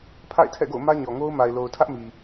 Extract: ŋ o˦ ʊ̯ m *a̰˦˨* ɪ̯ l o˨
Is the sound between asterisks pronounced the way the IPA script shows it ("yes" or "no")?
no